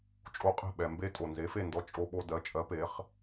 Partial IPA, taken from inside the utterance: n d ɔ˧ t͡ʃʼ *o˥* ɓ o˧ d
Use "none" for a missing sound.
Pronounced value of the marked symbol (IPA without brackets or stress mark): o˧